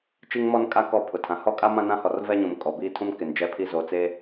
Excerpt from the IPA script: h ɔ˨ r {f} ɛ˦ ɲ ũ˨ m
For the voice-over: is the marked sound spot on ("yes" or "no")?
no